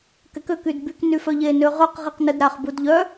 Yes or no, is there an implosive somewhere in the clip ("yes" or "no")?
no